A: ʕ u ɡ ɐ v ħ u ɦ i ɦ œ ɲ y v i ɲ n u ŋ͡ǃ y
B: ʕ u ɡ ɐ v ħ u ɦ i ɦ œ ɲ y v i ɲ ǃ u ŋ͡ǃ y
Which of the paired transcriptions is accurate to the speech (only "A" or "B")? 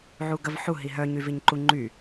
B